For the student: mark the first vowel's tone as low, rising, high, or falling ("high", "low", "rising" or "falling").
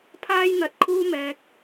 high